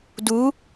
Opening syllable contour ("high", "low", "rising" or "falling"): rising